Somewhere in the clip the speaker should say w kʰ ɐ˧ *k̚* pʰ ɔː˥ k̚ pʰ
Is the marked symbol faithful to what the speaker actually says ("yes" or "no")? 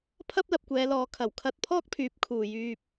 no